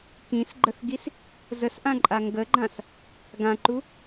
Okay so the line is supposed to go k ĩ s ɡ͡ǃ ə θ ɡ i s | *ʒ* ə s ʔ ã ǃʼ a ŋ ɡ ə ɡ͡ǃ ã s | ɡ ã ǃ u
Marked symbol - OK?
no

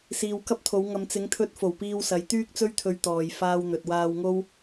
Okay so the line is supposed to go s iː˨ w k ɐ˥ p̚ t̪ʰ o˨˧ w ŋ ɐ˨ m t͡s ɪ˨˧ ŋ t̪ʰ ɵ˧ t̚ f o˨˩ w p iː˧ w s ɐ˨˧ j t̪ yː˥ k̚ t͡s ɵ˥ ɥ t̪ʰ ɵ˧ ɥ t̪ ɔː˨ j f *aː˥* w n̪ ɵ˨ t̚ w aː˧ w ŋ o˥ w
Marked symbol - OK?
no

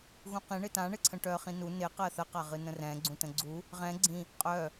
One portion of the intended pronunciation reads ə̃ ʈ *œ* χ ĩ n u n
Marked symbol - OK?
yes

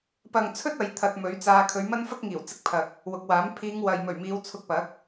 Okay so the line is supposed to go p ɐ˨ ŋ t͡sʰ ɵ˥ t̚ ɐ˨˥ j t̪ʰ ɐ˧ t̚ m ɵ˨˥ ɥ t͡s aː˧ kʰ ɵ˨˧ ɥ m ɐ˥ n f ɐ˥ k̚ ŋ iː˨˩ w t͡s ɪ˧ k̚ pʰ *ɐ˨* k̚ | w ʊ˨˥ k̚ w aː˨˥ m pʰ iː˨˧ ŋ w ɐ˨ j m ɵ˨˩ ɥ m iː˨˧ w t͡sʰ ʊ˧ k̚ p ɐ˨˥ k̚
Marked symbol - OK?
yes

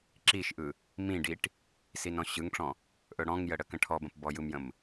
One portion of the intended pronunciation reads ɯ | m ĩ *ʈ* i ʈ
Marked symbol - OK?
no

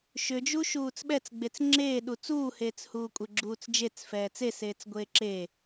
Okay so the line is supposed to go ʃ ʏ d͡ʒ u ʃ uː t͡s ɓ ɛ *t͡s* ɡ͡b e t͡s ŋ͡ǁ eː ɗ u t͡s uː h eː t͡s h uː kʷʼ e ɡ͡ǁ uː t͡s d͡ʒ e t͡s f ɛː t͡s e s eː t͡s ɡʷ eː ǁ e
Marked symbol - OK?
yes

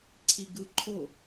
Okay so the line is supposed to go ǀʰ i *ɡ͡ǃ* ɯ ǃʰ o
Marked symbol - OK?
no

